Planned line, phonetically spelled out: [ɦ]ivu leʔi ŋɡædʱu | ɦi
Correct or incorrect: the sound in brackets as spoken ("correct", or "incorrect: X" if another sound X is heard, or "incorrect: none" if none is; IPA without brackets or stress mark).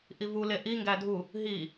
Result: incorrect: ʔ